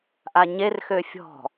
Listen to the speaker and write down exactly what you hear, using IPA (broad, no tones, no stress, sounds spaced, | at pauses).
ʔ a ɲ e r x ø fʲ ɔ̤